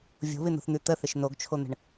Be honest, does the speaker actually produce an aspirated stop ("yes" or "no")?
yes